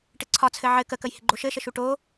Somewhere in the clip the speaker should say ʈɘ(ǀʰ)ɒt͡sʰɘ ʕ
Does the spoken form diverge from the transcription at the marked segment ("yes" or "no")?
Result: no